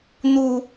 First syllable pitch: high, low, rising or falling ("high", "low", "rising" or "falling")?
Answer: high